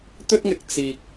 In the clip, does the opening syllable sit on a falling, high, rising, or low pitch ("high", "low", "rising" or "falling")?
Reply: high